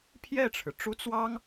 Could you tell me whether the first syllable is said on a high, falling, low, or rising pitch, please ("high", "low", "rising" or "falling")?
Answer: falling